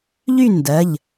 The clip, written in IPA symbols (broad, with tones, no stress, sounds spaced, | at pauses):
ʎ y˥˨ n d ɜ˩˧˩ ʎ